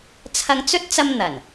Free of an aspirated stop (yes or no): no